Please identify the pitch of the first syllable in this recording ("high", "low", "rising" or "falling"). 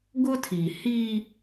high